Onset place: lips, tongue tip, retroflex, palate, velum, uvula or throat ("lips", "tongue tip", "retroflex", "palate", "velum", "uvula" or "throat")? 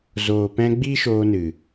tongue tip